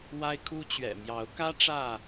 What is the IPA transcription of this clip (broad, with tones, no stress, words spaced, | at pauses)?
wa˦ɪ̯kʰu˦t͡ɕɥɛ̰˨˩ mjɑ˨˦ʊ̯kä˦ ʈ͡ʂä˥˨